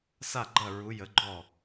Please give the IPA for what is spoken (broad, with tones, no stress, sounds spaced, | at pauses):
s a˥˩ ɡ͡ǃ ɐ˥˩ ɹ u˨˥ j ə˨˥ ɡ͡ǃ ɔ˥˩